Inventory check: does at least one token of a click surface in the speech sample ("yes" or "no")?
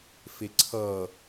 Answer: yes